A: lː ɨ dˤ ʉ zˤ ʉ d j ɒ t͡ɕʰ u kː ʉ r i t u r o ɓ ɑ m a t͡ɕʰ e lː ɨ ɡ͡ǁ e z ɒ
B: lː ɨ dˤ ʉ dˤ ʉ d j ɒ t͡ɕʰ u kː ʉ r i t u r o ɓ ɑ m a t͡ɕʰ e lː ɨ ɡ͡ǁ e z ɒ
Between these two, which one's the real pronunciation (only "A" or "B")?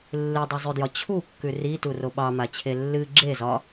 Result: A